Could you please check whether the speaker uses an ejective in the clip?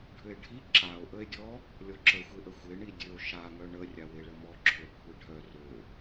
no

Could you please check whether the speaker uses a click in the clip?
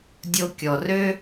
no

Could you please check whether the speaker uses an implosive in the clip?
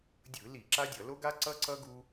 no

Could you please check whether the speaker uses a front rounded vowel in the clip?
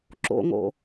no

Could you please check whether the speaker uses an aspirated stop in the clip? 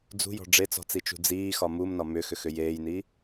no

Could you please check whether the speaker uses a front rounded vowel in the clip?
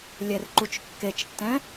no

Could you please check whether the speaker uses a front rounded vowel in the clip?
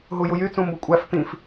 yes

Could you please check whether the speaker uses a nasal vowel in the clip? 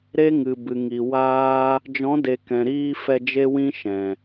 yes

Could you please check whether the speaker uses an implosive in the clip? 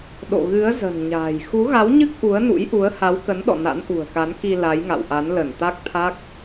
yes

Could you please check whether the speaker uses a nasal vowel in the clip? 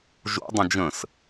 yes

